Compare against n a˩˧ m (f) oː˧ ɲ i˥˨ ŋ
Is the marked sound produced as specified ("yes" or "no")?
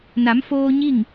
yes